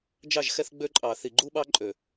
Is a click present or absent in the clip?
present